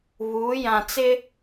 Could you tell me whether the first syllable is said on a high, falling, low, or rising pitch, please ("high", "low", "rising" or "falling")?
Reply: rising